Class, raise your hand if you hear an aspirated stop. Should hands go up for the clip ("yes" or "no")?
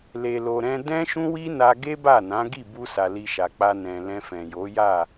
no